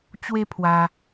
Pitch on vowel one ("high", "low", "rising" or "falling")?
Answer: high